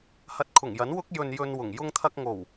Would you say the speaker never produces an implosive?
yes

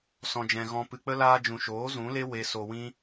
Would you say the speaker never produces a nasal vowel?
no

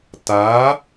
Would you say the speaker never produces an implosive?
yes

